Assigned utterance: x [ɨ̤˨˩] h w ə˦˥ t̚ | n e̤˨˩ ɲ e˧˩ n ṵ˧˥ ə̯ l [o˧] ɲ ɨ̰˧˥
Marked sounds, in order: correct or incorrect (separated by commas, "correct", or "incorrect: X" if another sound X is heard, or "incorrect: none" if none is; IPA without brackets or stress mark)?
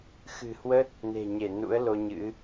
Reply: correct, correct